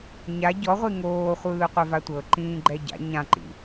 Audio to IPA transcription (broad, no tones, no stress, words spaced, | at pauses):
ɲa ɟɔʁʷi ŋoːχʷɯːqʷɛ vatʷɤ ǃĩːɡ͡ǃɛɟa̰ ɲãǃḭ